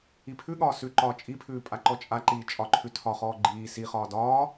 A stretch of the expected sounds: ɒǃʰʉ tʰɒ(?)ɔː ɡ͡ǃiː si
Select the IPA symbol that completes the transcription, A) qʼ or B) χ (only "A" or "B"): B